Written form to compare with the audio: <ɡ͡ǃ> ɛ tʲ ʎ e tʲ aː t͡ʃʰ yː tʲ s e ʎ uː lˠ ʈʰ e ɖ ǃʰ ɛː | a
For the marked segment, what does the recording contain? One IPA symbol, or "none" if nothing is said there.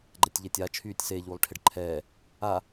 ɡ͡ǃ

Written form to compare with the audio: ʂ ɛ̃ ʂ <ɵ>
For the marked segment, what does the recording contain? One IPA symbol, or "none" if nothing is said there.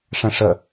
ə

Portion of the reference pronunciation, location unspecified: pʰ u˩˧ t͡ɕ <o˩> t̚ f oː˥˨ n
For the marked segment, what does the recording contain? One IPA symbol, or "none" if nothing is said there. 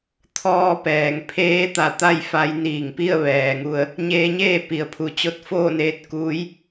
o˧˥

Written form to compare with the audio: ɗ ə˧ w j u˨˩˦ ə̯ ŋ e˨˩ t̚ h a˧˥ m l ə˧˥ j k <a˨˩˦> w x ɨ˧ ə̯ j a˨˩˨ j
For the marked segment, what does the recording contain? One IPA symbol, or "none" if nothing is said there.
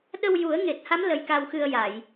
a˧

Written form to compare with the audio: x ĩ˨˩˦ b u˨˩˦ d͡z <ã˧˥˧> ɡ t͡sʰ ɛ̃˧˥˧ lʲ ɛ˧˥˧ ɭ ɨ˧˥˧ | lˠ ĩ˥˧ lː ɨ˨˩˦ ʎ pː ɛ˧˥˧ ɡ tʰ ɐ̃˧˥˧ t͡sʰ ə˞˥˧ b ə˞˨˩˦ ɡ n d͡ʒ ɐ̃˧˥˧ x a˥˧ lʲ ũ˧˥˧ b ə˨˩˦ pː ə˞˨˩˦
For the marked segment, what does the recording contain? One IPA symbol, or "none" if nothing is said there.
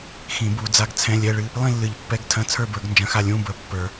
a˧˥˧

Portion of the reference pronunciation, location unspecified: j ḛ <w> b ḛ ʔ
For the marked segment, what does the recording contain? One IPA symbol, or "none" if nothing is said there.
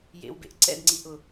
w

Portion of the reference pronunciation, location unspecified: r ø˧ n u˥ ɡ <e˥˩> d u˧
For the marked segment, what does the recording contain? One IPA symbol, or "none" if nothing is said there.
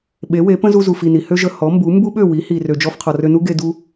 e˧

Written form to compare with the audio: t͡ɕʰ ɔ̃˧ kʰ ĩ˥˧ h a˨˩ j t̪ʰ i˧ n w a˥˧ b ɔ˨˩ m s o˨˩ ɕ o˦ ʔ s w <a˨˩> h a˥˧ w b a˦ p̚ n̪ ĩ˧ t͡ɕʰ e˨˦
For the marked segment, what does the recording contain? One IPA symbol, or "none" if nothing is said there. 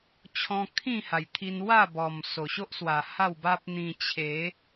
a˨˩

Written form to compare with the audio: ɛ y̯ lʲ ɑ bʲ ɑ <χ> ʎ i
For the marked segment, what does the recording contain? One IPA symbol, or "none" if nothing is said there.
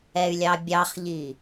χ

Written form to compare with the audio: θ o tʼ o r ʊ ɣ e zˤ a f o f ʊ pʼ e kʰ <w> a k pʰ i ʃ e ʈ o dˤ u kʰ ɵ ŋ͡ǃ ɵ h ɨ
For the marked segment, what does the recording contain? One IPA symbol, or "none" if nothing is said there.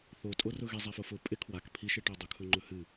w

